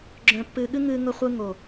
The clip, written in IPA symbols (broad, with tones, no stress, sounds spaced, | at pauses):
ɡ͡ǁ œ̃˨ pː ɨː˨ ɠ ɨ˧ ŋ ɨː˨ ŋ ʊ˨ χʷ ɯ˨ ŋ o˨